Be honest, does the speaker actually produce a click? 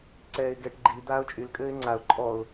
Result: yes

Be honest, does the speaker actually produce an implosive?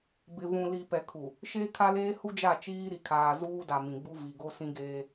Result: no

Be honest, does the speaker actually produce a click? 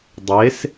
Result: no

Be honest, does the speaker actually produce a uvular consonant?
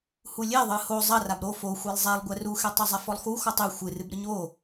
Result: no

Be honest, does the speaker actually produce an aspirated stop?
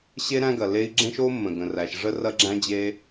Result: no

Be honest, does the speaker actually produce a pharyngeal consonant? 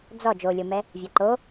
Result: no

